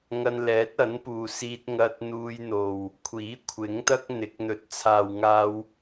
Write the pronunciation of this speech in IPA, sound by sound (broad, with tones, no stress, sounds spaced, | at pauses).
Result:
ŋ ɐ˧ n l ɛː˨˥ t̚ ɐ˨˥ n p uː˨ s iː˧ t̚ ŋ ɐ˧ t̚ n̪ uː˧ j n̪ o˨ w | kʷʰ iː˨˥ kʷʰ ɪ˨˥ ŋ t̪ ɐ˥ k̚ n̪ ɪ˨˥ k̚ n̪ ɵ˨˥ t̚ t͡sʰ aː˨ w ŋ aː˧ w